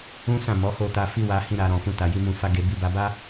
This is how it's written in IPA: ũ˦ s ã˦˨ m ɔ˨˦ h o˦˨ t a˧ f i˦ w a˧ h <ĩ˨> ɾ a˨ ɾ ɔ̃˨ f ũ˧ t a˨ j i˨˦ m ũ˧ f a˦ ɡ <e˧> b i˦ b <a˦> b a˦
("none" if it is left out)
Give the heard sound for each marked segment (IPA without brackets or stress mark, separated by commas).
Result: ĩ˧, e˧, a˦